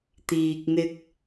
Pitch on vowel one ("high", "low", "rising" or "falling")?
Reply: low